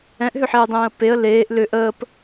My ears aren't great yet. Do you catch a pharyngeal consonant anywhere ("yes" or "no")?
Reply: yes